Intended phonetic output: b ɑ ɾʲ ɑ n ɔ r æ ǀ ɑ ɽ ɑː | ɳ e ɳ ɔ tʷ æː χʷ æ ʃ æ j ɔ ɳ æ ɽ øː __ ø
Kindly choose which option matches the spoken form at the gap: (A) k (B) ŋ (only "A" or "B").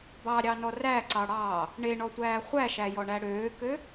A